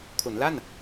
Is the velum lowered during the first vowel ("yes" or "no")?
no